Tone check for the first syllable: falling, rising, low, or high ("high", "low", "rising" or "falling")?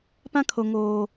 high